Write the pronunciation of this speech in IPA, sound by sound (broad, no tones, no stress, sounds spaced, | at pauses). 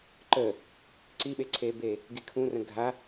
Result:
ǃ əː | ǀ i ɓ e ǀʰ eː b eː | ɡ i kʰ ũ r ə̃ ɡʱ a